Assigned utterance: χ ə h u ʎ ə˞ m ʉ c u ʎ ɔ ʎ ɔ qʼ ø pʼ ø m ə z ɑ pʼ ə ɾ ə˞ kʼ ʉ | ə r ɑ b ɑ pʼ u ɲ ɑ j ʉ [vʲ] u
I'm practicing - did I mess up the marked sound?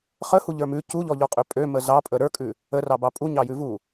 yes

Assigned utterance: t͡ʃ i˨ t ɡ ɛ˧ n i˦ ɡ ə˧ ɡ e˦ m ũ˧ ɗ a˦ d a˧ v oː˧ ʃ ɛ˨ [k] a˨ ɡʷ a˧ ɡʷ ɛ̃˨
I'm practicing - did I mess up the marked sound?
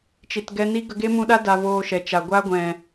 yes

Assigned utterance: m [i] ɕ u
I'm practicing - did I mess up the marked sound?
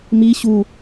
no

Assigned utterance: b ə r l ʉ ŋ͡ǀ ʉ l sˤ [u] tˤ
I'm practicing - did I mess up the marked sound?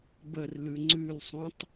yes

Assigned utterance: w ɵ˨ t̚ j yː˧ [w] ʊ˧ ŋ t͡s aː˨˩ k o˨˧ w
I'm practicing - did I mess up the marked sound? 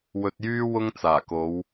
no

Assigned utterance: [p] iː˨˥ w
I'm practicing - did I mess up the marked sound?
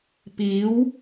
no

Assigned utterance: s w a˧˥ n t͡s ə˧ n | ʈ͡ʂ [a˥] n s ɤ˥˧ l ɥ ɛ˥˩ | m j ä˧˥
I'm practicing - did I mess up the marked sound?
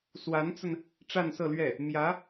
yes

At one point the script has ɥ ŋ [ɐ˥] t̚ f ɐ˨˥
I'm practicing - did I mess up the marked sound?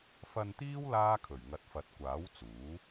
yes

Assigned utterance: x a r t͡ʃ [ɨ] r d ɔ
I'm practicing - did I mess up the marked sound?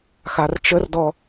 yes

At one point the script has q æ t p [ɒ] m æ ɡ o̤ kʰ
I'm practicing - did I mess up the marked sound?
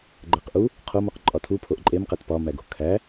no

